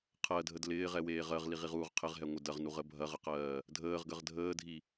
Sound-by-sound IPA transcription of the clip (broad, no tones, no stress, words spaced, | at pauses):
qʰɜdʱəd lɪːʁɛweː ʁɜʁliʁiʁuːʁ qʰɪʁɦɛŋʷɪ dɐʁnuʁə bʱɐʁəqɜː | dʱəːʁɡəʁ dʱəːdʱi